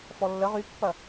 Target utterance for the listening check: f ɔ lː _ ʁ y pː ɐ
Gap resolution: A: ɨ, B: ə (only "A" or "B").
B